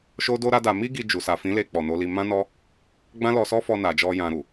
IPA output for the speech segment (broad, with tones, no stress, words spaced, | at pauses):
ʃo˦do˦ɾa˦da˧ mi˦ɡi˧ d͡ʒu˨sa˨fĩ˨˦le˧ k͡pɔ˨no˨˦li˧ mã˦nɔ˦ | ɡ͡bã˦lɔ˧sɔ˦fɔ˧ na˨d͡ʒɔ˧ jã˨ɾu˨